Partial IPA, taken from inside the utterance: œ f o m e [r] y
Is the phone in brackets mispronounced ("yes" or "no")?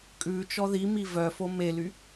yes